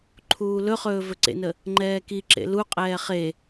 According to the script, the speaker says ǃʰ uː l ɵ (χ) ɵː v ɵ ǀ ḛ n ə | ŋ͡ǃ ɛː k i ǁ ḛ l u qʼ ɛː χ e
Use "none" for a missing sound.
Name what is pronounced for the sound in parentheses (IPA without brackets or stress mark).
χ